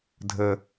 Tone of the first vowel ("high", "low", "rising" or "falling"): low